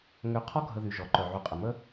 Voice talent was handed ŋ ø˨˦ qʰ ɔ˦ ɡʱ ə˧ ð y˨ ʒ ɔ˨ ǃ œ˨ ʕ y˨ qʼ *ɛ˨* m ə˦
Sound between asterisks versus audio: incorrect: ə˨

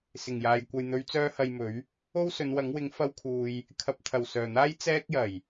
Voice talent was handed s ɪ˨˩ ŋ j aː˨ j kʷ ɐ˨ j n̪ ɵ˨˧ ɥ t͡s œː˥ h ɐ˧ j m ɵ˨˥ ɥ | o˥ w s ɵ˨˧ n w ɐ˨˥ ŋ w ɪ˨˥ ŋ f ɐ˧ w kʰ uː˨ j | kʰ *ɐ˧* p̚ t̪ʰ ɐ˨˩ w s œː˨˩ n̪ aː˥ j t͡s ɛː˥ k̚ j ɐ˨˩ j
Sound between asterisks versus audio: incorrect: ɐ˨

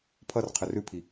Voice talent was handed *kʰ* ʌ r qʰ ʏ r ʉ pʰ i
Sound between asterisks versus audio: incorrect: pʰ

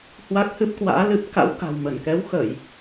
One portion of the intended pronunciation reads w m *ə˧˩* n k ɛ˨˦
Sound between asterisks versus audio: correct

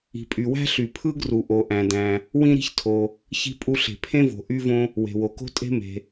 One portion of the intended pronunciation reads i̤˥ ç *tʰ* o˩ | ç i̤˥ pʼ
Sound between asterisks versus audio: correct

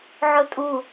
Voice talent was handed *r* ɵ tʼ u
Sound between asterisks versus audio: incorrect: ʕ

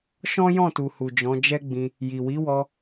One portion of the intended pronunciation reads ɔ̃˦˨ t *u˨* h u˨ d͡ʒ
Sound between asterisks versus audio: correct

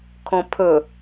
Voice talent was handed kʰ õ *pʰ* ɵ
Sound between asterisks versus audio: correct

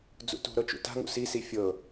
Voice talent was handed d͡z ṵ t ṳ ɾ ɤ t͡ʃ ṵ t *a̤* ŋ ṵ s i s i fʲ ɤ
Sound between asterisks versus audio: correct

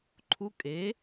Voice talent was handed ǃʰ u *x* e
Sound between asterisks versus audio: incorrect: kʼ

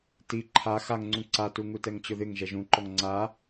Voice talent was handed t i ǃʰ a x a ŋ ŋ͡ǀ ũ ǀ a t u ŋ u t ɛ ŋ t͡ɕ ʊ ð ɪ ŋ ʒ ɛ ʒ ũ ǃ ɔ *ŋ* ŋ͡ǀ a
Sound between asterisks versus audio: correct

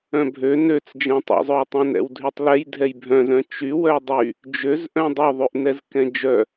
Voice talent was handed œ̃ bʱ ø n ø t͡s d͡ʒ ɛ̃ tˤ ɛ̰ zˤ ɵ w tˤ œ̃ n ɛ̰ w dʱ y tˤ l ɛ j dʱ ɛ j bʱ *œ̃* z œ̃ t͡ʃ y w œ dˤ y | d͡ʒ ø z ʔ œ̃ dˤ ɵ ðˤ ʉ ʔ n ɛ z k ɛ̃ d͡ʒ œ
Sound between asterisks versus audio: correct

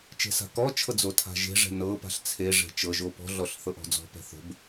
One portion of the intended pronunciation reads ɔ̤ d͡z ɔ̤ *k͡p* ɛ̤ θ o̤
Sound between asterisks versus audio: incorrect: p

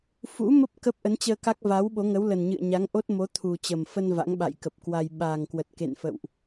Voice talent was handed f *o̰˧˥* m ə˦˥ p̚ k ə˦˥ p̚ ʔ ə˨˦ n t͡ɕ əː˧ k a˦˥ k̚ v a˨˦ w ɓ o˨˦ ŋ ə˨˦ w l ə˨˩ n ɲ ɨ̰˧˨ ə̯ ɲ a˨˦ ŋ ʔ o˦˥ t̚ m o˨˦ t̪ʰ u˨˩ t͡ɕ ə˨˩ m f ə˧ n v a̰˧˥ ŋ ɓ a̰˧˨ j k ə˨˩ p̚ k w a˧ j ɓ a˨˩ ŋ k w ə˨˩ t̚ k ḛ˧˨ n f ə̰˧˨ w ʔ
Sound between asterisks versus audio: incorrect: ṵ˧˥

